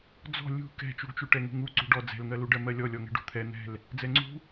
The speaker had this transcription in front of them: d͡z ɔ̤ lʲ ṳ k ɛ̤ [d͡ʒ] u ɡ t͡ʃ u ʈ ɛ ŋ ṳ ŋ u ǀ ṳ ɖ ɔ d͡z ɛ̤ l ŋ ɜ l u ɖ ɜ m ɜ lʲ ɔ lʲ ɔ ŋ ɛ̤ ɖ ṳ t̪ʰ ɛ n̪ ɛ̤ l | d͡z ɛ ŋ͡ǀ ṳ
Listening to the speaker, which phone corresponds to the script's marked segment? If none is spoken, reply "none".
t͡ʃ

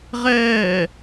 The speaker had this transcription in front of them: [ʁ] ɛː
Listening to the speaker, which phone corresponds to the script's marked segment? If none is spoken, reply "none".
ʁ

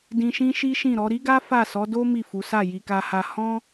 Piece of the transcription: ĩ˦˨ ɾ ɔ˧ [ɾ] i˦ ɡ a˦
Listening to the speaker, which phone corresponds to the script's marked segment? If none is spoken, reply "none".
ɾ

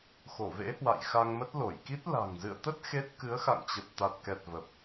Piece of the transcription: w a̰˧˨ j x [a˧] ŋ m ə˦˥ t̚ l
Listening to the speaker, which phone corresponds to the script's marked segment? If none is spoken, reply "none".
a˧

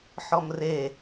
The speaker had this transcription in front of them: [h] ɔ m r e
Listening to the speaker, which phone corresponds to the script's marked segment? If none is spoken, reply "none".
ħ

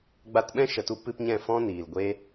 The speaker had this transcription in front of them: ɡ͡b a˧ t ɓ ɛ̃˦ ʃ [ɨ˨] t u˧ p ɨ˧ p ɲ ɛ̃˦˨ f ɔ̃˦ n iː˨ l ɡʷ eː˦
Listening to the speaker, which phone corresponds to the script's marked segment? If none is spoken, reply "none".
ə˨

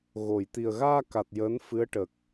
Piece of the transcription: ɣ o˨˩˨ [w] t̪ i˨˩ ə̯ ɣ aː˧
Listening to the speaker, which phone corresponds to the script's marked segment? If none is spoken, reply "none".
j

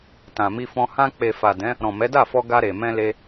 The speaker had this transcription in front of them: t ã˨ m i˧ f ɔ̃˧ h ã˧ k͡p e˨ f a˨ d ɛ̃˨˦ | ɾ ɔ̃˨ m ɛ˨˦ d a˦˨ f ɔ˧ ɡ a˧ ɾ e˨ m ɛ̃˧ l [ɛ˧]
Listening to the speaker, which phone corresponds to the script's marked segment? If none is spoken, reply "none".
e˧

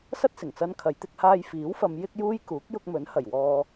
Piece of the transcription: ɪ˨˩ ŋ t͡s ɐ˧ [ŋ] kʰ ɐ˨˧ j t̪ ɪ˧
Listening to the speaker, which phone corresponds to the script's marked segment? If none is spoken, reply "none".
n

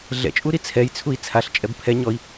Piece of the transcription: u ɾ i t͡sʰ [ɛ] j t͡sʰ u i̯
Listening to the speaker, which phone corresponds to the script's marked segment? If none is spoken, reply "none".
ɛ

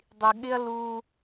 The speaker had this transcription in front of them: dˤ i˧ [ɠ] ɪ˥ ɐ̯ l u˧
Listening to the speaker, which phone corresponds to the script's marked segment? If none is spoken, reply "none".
ɠ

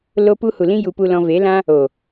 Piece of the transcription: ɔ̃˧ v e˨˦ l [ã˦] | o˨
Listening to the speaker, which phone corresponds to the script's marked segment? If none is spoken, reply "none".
ã˦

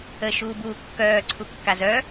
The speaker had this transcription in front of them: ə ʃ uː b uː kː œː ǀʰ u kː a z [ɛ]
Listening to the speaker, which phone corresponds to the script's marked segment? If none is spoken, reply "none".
œ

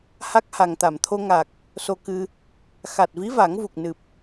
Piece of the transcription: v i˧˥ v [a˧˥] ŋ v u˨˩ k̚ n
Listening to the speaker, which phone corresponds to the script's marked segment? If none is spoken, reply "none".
a˨˩˦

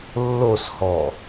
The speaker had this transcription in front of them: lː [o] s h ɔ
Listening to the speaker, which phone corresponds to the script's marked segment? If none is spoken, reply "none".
o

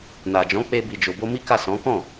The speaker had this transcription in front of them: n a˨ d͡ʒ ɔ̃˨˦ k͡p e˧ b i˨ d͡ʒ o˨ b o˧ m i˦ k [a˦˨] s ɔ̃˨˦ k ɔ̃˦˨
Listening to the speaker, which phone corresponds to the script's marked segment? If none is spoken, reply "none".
a˦˨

